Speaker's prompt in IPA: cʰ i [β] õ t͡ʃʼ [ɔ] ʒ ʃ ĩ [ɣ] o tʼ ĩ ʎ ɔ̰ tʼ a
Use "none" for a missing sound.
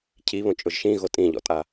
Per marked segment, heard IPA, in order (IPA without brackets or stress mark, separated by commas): β, ʊ, ɣ